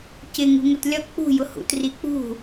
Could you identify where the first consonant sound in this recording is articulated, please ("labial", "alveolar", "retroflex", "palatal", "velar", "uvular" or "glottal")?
palatal